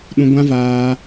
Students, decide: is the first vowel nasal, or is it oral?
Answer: nasal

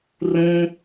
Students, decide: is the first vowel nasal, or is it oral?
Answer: nasal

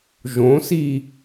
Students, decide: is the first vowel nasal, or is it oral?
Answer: nasal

